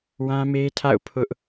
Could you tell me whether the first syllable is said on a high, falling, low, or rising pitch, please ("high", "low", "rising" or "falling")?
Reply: high